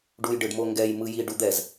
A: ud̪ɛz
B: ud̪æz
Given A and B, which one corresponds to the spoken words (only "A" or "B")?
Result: A